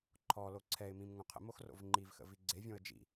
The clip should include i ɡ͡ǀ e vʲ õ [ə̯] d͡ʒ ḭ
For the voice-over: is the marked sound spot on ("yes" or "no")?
yes